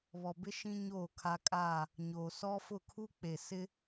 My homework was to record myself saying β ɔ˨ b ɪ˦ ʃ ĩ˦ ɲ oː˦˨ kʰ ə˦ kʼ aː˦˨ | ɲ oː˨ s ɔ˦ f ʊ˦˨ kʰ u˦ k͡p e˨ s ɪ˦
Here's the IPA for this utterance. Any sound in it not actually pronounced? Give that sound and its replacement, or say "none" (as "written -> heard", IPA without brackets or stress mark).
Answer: ə˦ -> a˦